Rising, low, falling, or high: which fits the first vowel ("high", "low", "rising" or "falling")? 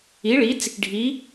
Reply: rising